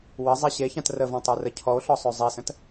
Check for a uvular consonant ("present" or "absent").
absent